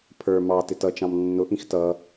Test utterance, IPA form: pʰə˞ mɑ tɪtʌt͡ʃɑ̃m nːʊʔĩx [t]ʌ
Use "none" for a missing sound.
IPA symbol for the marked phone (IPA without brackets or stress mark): t